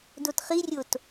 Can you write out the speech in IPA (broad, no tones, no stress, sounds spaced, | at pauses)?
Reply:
d o t χ i rʲ o t